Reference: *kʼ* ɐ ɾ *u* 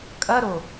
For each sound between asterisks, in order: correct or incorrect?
correct, incorrect: o

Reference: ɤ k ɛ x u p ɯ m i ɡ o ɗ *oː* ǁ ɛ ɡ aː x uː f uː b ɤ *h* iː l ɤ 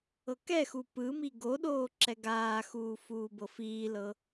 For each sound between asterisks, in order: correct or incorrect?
correct, incorrect: f

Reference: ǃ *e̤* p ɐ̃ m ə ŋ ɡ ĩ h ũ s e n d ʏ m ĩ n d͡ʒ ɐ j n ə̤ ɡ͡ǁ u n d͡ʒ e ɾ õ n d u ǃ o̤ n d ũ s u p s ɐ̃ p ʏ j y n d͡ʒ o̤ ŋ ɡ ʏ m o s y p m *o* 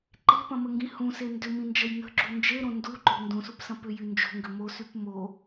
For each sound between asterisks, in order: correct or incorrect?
correct, correct

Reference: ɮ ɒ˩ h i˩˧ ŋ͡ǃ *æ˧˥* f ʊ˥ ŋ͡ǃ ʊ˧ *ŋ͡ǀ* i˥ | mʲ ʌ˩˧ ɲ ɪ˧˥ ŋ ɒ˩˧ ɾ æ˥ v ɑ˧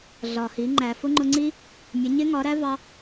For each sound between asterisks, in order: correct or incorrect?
incorrect: æ˩, correct

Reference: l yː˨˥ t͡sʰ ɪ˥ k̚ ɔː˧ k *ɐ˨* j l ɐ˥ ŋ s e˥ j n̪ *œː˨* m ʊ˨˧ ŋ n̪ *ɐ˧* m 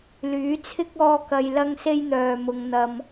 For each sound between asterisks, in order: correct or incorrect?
correct, correct, correct

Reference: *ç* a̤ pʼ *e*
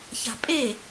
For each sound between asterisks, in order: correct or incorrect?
correct, correct

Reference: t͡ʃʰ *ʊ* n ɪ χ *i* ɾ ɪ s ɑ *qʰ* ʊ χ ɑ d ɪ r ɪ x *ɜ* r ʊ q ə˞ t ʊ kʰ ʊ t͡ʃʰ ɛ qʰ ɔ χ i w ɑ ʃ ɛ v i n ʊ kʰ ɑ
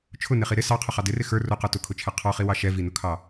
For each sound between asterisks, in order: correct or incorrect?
correct, correct, correct, incorrect: ə˞

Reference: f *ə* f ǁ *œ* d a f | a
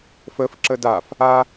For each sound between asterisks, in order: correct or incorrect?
correct, incorrect: ə

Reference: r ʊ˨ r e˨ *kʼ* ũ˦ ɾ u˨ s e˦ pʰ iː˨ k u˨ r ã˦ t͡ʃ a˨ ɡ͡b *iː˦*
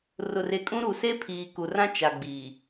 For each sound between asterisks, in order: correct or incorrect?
correct, incorrect: iː˨

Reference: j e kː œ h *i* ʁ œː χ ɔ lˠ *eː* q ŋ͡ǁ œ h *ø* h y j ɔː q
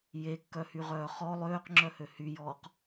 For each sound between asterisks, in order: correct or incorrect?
incorrect: y, incorrect: øː, correct

